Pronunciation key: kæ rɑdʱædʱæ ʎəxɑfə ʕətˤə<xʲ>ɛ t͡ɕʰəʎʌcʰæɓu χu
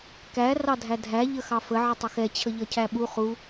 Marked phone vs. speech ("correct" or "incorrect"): incorrect